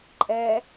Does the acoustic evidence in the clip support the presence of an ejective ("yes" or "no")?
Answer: yes